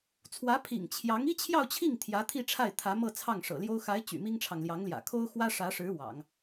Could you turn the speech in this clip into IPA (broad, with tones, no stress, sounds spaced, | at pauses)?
t͡sʰ w ä˧˥ pʰ ḭ˨˩ ŋ t͡ɕʰ j ɑ˧˥ ŋ i˥ t͡ɕʰ j ɑ˥˧ ʊ̯ t͡ɕʰ i˥˩ ŋ t̪ʰ j ä˧˥ t̪ʰ i˥˧ ʈ͡ʂʰ a˥˩ ɪ̯ t̪ʰ ä˧˥ m ɤ˥˧ t͡sʰ ɑ˥˩ ŋ ʂ ɤ̰˨˩ l j o˥ ʊ̯ x a˧˥ ɪ̯ t͡ɕ y̰˨˩ m i˥ ŋ ʈ͡ʂʰ ɑ˨ ŋ l j ɑ˧˥ ŋ l j ä̰˨˩ kʰ o˥ ʊ̯ x w ä˥ ʂ ä˧˥ ʂ ɻ̩˧˥ w ɑ̰˨˩˦ ŋ